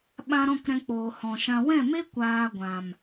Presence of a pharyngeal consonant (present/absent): absent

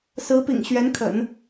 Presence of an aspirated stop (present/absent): present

